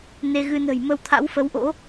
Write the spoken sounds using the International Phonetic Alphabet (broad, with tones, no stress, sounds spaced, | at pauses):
n e˧ ɣ ɨ˧ n ə̤˨˩ j m ə˧ w t̪ʰ a̰˧˥ w f ə˨˦ w ʔ o̰˧˥